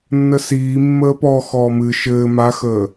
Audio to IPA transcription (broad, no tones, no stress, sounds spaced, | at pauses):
nː ə s iː mː əː p ɔ x ɔː m ɨ ʃ ɘː m a x əː